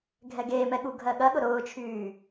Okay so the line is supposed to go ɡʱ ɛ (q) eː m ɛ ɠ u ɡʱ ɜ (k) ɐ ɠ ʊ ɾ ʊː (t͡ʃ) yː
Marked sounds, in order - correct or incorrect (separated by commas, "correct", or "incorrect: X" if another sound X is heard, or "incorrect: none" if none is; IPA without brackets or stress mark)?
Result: incorrect: ɡ, incorrect: ɠ, incorrect: t͡ʃʰ